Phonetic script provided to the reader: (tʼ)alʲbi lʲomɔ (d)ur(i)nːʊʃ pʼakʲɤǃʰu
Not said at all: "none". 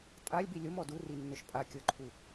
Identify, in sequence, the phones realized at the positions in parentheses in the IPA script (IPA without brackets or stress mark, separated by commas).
tʼ, d, i